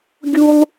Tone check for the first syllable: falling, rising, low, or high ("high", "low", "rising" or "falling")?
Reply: high